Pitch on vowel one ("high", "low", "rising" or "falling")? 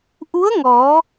rising